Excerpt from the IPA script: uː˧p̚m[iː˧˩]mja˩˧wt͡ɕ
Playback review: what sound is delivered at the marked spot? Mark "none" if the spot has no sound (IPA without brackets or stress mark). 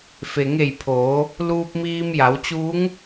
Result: iː˧